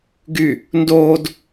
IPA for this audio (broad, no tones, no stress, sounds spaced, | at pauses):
ɡ y | n d oː d